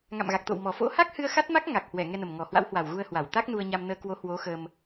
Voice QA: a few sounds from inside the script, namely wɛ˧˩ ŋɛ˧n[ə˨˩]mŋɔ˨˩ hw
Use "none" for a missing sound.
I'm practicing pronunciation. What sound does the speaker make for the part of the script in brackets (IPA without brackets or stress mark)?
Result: ə˨˩